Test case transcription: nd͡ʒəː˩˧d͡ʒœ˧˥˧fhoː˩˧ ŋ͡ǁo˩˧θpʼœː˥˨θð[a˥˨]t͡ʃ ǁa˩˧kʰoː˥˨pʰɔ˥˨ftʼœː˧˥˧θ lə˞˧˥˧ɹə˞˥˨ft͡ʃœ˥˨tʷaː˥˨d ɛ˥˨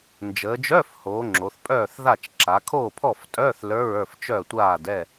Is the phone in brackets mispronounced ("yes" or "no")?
no